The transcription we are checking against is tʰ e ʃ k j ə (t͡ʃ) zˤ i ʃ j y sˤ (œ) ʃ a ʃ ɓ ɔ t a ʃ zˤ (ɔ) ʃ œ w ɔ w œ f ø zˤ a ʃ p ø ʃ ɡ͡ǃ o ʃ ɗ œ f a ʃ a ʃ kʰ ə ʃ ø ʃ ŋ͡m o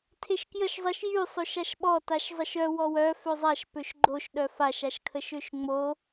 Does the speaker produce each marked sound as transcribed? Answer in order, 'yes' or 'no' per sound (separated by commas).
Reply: no, no, no